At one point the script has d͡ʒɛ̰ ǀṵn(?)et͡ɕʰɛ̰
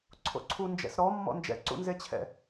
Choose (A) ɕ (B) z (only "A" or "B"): B